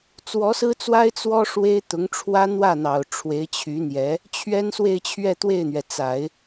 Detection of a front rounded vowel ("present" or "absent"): present